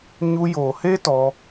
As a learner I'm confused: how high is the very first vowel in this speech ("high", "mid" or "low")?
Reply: high